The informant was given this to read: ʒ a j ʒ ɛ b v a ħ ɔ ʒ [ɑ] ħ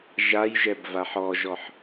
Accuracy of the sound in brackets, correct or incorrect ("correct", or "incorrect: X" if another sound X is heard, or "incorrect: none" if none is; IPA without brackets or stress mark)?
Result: incorrect: ɔ